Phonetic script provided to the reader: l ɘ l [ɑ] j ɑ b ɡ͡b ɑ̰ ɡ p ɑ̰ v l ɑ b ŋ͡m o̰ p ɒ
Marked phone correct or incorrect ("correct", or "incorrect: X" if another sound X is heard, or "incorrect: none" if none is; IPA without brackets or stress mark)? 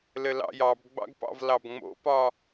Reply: incorrect: ɑ̰